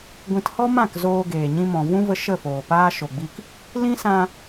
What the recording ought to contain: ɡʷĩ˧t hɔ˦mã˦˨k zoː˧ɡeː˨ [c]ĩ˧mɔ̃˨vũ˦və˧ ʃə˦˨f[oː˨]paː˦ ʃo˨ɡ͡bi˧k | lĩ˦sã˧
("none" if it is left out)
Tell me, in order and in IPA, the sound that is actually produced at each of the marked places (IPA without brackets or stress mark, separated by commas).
ɲ, oː˨